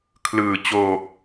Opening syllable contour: low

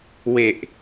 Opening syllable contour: low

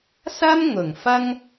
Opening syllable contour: high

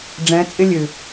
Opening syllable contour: rising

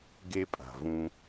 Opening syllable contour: high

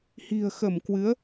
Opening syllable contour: low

